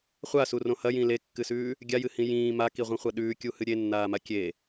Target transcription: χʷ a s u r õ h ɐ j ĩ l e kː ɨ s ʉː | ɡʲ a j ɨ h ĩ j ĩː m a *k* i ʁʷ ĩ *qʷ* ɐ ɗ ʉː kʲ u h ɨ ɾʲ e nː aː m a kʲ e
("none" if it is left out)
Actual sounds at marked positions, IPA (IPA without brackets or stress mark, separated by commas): k, χʷ